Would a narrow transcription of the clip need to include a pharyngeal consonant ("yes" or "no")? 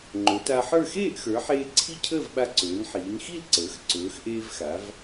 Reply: yes